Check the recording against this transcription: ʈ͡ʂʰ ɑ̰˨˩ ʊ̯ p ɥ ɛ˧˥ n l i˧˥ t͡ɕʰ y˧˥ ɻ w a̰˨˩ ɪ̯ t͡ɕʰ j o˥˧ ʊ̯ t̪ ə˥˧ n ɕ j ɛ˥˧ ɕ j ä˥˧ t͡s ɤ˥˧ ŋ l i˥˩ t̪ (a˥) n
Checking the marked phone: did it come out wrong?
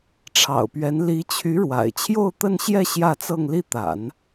yes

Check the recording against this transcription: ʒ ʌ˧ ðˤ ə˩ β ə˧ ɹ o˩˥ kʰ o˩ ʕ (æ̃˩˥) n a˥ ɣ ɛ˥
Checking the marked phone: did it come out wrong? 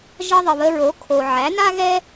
yes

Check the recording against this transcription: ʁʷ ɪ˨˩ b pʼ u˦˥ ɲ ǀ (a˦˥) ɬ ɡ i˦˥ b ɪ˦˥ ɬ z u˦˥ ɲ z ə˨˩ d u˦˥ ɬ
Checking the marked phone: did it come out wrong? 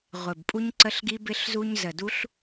yes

